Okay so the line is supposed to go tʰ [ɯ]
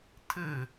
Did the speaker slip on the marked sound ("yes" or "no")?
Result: no